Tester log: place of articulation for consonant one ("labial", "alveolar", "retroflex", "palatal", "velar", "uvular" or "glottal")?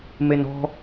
labial